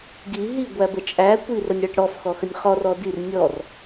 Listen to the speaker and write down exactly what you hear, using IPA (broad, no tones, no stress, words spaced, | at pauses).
ɡi ɦiɡʷæbə t͡ʃʼækʷi rənʲɽæʈɽɔf xɔxənʲχɔ rɔdir nʲɔr